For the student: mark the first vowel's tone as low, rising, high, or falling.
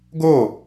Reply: falling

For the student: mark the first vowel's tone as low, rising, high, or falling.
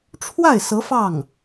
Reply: falling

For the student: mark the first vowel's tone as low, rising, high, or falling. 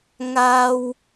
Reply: high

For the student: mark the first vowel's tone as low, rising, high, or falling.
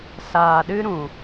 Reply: low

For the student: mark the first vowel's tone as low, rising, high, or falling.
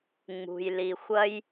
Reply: low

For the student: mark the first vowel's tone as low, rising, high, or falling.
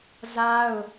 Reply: high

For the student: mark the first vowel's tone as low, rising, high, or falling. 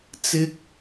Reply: high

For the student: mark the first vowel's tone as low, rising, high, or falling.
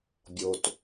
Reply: low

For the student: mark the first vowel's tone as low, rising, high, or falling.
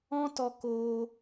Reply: high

